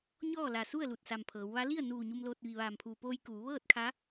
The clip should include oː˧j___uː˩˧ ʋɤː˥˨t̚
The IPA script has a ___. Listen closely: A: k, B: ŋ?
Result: A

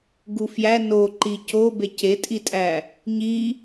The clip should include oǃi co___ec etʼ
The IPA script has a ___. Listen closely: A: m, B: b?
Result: B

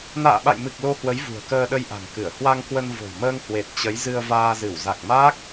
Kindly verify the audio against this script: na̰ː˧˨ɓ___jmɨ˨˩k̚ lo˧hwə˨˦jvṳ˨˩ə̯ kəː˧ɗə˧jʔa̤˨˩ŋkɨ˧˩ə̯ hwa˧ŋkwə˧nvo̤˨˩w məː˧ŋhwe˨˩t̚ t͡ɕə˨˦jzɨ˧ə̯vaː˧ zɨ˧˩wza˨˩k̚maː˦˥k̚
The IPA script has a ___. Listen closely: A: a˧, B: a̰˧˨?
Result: B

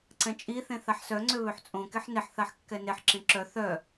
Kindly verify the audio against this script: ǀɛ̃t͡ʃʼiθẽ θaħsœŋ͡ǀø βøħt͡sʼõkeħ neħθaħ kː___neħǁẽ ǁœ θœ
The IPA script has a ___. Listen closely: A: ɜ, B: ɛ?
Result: B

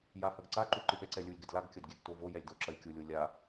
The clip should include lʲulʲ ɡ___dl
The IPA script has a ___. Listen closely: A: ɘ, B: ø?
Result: A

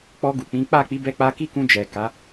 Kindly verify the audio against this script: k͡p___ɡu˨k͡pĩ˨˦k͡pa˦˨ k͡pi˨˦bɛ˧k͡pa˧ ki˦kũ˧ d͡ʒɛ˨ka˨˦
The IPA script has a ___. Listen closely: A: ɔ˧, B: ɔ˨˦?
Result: A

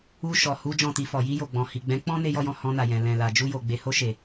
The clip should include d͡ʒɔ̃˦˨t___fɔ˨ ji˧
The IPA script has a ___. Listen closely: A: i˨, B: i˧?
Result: B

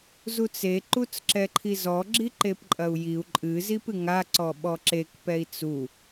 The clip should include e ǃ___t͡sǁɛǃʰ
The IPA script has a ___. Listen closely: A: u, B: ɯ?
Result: A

